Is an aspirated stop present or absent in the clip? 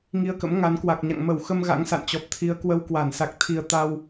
present